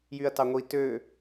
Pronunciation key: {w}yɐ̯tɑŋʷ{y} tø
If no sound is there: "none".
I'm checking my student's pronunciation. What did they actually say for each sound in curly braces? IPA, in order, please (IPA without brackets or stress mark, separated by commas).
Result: j, i